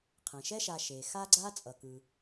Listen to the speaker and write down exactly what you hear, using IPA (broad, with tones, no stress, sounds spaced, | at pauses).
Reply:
qʰ ẽ˩ ʃ ɛ˦ ʃ a˨ ʃ e˩ x a˦ ɡ͡ǀ a˦ t͡sʼ ʌ˩ k ɯ˩